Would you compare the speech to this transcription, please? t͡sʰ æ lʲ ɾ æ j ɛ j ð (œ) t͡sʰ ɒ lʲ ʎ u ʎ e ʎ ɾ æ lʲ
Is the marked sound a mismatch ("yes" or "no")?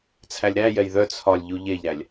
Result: no